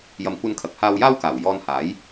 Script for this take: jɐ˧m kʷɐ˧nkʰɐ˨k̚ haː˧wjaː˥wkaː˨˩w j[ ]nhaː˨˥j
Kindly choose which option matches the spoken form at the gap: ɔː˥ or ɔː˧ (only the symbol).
ɔː˧